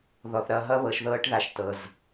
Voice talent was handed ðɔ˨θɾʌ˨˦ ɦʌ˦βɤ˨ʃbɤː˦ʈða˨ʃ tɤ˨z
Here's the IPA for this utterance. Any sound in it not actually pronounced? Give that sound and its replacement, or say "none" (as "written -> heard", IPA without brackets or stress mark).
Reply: b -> ð